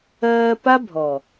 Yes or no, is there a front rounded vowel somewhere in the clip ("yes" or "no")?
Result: no